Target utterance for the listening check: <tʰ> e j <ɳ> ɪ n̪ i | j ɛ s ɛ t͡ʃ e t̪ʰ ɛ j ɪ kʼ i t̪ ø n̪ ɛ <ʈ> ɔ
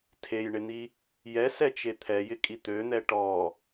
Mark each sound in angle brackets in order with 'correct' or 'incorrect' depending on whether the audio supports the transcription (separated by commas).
correct, correct, correct